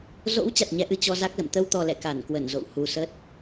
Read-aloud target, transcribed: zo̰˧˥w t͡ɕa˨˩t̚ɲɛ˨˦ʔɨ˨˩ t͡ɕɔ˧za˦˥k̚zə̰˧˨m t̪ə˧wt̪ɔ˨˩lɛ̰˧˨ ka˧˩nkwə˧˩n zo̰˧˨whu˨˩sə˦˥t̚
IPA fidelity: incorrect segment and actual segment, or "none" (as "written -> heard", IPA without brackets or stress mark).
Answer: none